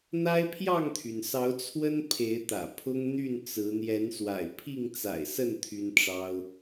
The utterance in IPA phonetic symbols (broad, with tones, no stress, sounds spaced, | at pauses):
n̪ a˦ ɪ̯ pʰ j ɑ˥˨ ŋ t̪ʰ y˩ n s ɑ˨˦ ʊ̯ t͡sʰ w ə˦ n pʰ e˨˦ ɪ̯ t̪ ä̰˨˩ pʰ ʊ˦ ŋ n̪ y˥˨ n t͡s ɹ̩˨˦ n̪ j ɛ˨˦ n s w a̰˨˩ ɪ̯ pʰ i˥˨ ŋ t͡s a̰˨˩ ɪ̯ s ə˥˨ n t̪ʰ y˦ n ʈ͡ʂ ɑ˦ ʊ̯